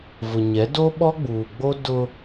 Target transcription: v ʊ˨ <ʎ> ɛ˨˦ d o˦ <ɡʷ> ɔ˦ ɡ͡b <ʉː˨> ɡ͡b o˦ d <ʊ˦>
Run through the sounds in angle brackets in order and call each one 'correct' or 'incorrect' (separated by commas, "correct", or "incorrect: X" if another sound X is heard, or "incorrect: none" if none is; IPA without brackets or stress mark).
incorrect: ɲ, incorrect: ɓ, incorrect: uː˨, correct